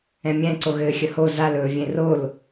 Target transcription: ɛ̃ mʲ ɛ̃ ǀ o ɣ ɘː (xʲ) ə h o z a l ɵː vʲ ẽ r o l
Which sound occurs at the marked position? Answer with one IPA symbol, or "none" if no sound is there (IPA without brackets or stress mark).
xʲ